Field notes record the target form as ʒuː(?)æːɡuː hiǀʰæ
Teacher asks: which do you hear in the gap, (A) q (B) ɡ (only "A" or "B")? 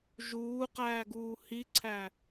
A